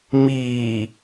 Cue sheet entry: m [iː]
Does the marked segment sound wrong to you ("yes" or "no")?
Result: no